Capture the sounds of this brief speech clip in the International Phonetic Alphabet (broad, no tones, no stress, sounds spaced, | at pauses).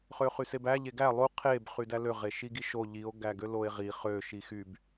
χ ø χ y s e b æ ʎ e ɡ æ lˠ u qʰ e b χ y d æ l ø ʁ e ʃ i ɡ i ʃ o ʎ i o̯ ɡ æ ɡ ø l o e̯ ʁ i χ ø ʃ i x y b